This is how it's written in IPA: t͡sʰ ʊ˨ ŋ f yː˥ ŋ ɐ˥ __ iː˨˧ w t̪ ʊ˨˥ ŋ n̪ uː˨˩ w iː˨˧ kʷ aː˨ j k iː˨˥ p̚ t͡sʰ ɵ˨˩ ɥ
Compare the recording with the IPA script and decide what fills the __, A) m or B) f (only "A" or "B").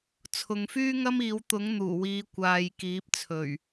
A